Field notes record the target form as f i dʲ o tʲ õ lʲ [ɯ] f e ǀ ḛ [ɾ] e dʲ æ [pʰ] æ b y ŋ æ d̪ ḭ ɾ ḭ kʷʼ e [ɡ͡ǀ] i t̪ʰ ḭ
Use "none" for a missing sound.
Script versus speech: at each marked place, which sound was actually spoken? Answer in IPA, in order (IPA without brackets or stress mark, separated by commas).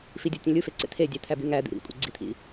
ɯ, t̪ʰ, t̪ʰ, ɡ͡ǀ